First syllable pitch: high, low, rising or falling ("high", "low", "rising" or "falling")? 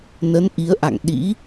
rising